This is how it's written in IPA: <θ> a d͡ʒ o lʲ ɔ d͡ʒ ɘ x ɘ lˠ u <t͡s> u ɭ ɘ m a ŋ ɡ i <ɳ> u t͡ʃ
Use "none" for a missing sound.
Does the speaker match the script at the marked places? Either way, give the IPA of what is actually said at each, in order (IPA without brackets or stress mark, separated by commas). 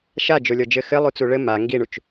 ʃ, t͡s, ɳ